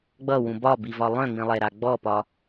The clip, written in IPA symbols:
ɡ͡b ʌ w ũ b ɒ b i v ɒ lˠ œ̃ ŋ͡m ĩ lˠ ɛ ɾ a ɡ͡b ɔ p ɒ

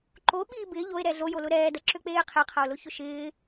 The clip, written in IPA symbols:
ǃ o ɓ iː b ɪː ʎ o e̯ ɾ ɛ ɮ o j o l ʊ ɾ ɛː d ɐ ǁ ø k͡p eː qʰ e qʰ ɐ o̯ l ʊ ç ʊ ʃ ɪː

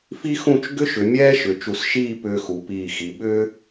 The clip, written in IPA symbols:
f i˥ x ũ˥˧ t͡ʃ ɡ ʏ˥ ʃ ʏ˩˧ mʲ ɛː˥ ʃ ʏ˩˧ t͡ʃ u˧˩ s ʃ iː˥˧ p ʏː˧ x u˩˧ p iː˧˩ x i˩˧ ɓ ʏː˥

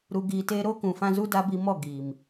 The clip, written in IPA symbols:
ɾ u˧ ɡ iː˧ t eː˦ ɾ oː˦ k ũ˨ f ã˧ z u˦ d a˦ b i˧ m ɔ˦˨ ɡ iː˨ m

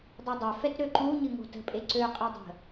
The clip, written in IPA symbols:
dˤ i dˤ ø f ɛ t ɾ ø ǃ u ɲ ɨ ŋ o̤ t ə̤ pʼ e ǀ ø qʼ i dˤ ə̤

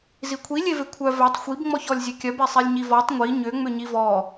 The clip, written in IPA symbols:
z i kʷʰ i lʲ e v e kʷʰ œ v ɛ tˤ xʷ i b ŋ͡m ɔ ç ɔ lʲ zʲ e kʲ œ b e sˤ e lʲ ɲ i v ɔ tˤ ŋʷ i ɲ ʏ ŋ͡m ʏ ɲ i v ɔ

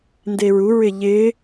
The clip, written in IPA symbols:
n d e ɹ u ɹ ɪ ʎ ɪ

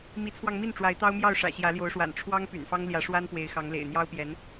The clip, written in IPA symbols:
m i˧˥ t͡sʰ w ɑ˧ ŋ m i˥˩ n ʈ͡ʂ w a˧˥ ɪ̯ t̪ ɑ˥ ʊ̯ m j ɑ˥˩ ʊ̯ ʂ ä̰˨˩ ɕ j ä˧˥ l j o˧˥ ʊ̯ ʂ w a̰˨˩ n ʈ͡ʂʰ w ɑ˥ ŋ p y̰˨˩ n f ɑ˥ ŋ l j ä˧˥ ʂ w a˥ n p w e˧˥ ɪ̯ x ɑ˧˥ ŋ l ḛ˨˩ ɪ̯ n̪ j ɑ˥ ʊ̯ p j ɛ˧˥ n

